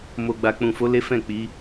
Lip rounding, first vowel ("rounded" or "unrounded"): rounded